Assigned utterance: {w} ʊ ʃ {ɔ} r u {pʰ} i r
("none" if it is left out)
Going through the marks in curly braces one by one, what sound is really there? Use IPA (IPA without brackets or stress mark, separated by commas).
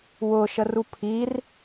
w, ə, pʰ